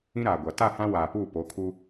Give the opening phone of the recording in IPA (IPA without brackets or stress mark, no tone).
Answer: ĩ